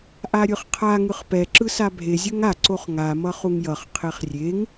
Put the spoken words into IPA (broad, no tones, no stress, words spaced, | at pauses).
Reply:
ʔaɾʲɯχqʰa ŋɯχpɛ ǁɯsabʱe zʲoŋa ǀoχŋa mʌχuŋjʌχ qʰeχrʲeŋ